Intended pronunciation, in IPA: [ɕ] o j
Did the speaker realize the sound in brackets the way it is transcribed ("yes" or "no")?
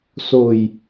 no